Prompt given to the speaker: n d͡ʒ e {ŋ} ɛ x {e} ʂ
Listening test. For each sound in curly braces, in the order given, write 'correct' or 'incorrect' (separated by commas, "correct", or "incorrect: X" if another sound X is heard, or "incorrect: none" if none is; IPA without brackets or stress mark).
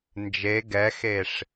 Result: incorrect: ɡ, correct